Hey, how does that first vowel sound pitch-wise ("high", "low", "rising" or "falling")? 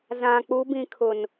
low